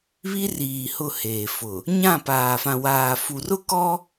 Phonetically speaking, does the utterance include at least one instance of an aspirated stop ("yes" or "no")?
no